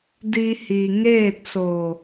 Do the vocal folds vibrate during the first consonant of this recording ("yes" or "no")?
yes